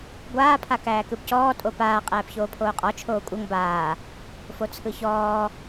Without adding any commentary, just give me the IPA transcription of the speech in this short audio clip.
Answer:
ɡʷ aː pʰ a k æː k ɯ b c ɔː tʼ o p aː qʼ æː p ç oː pʰ oː qʼ ɔ t͡ʃʰ oː kʷʼ ɤ ŋ b aː | f o t͡sʰ ɯ ç ɔː

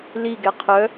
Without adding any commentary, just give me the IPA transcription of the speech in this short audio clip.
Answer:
l i ɡ ɛ qʰ œ

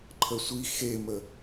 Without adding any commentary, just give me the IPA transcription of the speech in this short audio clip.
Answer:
ǃʰ ə sʷ i x e m ə

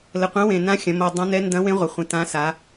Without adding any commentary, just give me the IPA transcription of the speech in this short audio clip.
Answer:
l ə˨˩ qʷ ɐ̃˧˥ w ẽ˨˩ n ã˧˥ xʲ ɐ̃˩˧ m o˨˩ dˤ ã˧˥ n ɛ˧˥ n d ɐ̃˧˥ w ẽ˧˥ ʁʷ ə˩˧ χʷ ẽ˨˩ t ã˧˥ s a˩˧

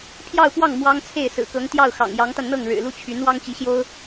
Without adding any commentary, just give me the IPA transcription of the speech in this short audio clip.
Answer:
pʰ j ɑ˥˧ ʊ̯ p w ɑ˥˩ ŋ m w ɑ˥ ŋ t͡sʰ e˥˩ ɪ̯ s ɹ̩˨˩ k ɤ˧˥ ŋ t̪ j ɑ˥˩ ʊ̯ x ɑ̰˨˩ ŋ j ɑ˧˥ ŋ t̪ a˧ n n̪ ɤ˥˩ ŋ ɻ ɻ̩˨˩ l u˥˩ t͡ɕʰ y˧˥ n w ɑ˥ ŋ t͡ɕ i˧˥ ɕ j o˥ ʊ̯

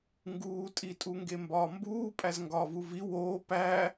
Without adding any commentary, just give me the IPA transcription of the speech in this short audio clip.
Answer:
ŋ ɡ uː tʼ i tʼ u ŋ ɡ e m b ɒː m b uː pʼ æ z ŋ ɡ ɒː v u v i w oː p æ

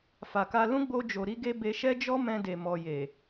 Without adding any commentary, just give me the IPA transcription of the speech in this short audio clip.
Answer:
f a˨ k a˧ l ũ˦ ɡ͡b o˦ d͡ʒ o˧ ɾ i˦ ɡ e˦ b e˧ ʃ ɛ˦ d͡ʒ ɔ˦ m ɛ̃˧ d e˨ m ɔ˨ j e˨

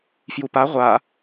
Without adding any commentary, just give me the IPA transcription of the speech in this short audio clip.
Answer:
f j u p a ʁʷ a

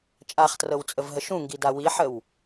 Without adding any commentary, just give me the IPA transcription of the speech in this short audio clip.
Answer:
t͡ʃʼ a χ t r ɤ w t͡sʼ ə v ɦ ə ʃ ũ ŋ ɡ i d a w i ħ ə w

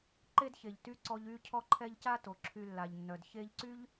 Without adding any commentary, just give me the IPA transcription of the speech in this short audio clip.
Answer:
ǃ e˥ d ç e˨ ʎ t y˥ ǀ ɔ˦ ʎ y˥ cʰ ɔ˦ ǃʰ ɛ˦ ʎ c a˥ t o˩ ǁʰ y˨ lː a˩ ʎ nː œ˩ d ç e˦ ʎ ǀ y˥ ʎ

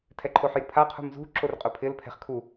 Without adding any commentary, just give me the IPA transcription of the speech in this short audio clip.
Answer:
tʰ ɛ ǃʰ o ħ j u pʰ a qʰ ṳ m z ṳ ǁ o r qʼ ʊ pʰ ɪ l pʰ ɛ̤ χ kʰ u

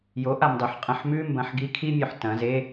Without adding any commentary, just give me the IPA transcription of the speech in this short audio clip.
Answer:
j o ʔ a m dˤ ʉ ħ qʼ ɐ̃ ħ m ʉ m b ɐ̃ ħ ɡ i kʰ i mʲ ɵ ħ t ɐ̃ z e

